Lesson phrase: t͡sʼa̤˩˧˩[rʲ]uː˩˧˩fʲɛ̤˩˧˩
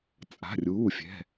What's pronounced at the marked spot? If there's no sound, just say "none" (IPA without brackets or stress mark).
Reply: rʲ